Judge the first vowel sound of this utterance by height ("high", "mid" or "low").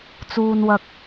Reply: high